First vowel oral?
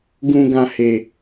no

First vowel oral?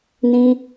no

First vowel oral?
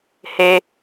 yes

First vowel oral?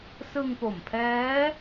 yes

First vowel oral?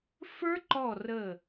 yes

